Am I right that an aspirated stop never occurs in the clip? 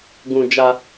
yes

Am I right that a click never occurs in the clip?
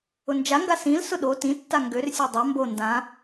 yes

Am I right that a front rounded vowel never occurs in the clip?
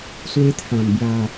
yes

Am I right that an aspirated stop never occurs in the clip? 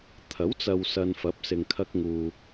no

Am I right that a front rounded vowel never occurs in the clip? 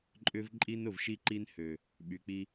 no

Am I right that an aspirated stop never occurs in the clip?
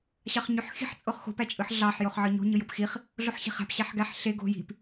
yes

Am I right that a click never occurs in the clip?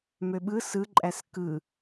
no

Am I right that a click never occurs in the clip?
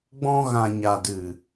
yes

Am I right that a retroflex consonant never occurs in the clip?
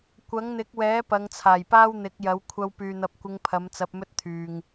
yes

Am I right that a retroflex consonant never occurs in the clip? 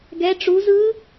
no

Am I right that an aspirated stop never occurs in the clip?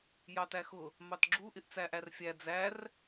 yes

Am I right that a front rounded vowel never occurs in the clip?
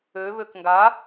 no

